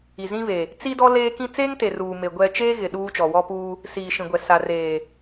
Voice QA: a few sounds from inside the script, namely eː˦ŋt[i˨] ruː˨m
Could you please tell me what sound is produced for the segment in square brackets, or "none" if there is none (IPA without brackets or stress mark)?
e˨